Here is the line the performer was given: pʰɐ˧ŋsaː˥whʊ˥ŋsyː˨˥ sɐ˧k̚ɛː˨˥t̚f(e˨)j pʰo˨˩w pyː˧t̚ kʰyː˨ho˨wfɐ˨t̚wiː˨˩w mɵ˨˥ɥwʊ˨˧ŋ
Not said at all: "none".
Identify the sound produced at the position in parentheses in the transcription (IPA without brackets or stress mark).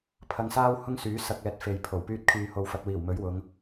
e˨